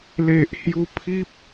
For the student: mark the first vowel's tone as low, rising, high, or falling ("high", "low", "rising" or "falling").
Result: low